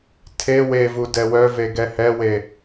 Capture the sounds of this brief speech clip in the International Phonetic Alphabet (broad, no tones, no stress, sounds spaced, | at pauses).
tʰ e w e v u d ɛ w œ v e ɡ ɛ h ɛ w e